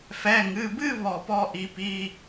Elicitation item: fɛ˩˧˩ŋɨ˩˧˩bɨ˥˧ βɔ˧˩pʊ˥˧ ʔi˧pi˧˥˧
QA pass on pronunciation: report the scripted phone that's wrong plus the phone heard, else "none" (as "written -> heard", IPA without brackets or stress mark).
ʊ˥˧ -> ɔ˥˧